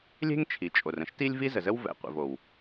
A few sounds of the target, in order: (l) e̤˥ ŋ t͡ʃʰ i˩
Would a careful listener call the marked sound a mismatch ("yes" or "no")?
yes